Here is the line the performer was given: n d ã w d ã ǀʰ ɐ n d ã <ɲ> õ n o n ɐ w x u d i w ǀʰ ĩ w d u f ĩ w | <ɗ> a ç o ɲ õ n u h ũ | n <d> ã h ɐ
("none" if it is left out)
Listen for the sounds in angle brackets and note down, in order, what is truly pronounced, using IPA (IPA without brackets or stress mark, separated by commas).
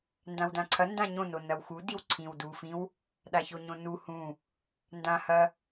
ɲ, ɗ, d